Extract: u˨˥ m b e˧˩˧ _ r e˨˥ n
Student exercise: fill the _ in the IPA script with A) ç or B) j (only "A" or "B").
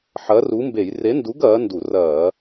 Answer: B